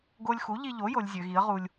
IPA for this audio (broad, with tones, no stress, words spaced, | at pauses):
ɡo˧lʲxu˩˥ʎi˧ʎo˩˥ jo˩˧lʲ zʲø˩˧ɣi˩˥ə̯ʁu˧lʲ